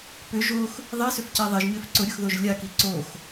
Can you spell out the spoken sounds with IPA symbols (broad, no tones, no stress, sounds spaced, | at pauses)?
p ʏ ʒ o x | ðˤ i s ʏ f c e ðˤ e ʒ ɲ ø f ǀ ʊ ɾʲ ʊ x ð o ʒ lʲ a k i ǀ o x